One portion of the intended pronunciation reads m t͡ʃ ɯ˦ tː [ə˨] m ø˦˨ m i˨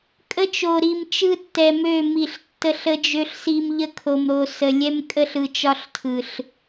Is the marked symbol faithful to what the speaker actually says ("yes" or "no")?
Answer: no